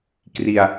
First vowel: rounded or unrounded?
unrounded